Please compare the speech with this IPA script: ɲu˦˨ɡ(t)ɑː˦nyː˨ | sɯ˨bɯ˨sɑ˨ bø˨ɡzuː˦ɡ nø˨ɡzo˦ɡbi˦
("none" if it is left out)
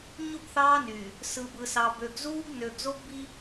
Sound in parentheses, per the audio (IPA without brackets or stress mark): θ